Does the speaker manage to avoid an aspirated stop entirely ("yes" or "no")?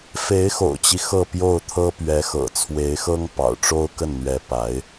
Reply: no